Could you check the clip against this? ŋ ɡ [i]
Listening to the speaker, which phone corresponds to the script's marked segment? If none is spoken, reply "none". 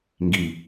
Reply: i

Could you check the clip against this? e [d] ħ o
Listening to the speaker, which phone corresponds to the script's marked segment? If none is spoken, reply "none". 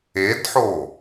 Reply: d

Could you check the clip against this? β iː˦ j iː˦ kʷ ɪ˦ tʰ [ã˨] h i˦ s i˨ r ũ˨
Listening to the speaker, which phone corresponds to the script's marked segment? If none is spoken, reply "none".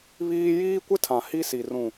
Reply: ã˨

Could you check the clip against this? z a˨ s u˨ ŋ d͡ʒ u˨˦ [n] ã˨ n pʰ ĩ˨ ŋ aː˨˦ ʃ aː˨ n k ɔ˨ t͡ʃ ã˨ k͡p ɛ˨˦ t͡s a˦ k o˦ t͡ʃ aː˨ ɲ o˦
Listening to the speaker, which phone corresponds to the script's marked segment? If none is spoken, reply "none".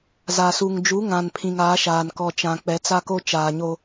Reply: ŋ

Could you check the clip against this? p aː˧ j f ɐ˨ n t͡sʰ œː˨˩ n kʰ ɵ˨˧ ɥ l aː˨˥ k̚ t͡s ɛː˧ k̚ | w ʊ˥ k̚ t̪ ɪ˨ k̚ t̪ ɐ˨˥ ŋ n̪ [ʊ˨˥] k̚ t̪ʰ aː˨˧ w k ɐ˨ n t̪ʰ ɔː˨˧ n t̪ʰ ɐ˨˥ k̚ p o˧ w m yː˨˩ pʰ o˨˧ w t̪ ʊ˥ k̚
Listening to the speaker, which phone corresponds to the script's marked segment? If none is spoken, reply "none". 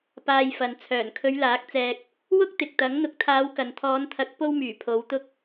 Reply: ʊ˨˥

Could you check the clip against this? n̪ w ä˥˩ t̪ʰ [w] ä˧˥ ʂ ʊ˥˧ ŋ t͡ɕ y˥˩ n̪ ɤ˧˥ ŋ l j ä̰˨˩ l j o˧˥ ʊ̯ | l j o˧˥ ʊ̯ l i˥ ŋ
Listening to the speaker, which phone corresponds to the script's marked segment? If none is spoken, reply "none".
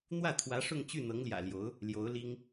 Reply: w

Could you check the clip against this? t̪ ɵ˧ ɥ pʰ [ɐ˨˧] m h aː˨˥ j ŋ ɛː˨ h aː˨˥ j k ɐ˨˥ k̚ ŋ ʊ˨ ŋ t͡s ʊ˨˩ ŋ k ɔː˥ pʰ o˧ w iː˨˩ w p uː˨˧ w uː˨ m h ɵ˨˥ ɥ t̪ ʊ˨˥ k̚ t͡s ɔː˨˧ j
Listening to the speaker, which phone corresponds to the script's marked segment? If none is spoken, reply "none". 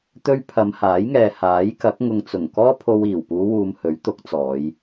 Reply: ɐ˨˧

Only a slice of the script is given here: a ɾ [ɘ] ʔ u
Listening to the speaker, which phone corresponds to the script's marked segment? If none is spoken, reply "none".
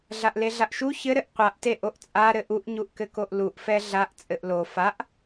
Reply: ɘ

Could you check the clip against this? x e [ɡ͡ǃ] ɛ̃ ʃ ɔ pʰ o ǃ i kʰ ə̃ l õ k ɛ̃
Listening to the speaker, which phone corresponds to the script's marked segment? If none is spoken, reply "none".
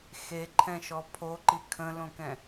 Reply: ǃʰ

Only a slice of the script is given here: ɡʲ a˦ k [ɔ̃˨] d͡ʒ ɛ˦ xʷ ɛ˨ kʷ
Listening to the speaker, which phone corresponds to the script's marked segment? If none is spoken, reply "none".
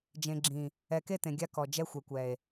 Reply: ɔ˨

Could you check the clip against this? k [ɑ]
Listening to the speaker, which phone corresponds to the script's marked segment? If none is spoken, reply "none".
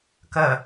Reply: ɐ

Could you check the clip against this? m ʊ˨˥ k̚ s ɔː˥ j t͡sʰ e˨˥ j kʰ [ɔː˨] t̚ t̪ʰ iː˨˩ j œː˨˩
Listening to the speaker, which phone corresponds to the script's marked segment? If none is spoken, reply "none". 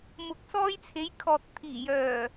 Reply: ɔː˨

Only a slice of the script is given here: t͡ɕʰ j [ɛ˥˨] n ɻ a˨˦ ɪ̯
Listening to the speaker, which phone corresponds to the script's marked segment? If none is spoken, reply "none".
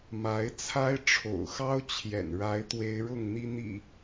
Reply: ɛ̰˨˩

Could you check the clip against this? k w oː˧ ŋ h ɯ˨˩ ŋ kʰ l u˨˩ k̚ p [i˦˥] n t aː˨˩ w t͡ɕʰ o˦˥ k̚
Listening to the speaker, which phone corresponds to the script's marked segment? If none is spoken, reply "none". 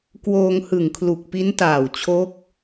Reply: i˦˥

